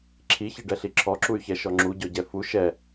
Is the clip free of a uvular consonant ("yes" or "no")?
yes